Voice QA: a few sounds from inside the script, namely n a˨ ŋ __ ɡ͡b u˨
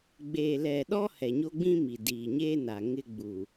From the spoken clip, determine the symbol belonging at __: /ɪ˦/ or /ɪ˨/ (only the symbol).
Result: ɪ˦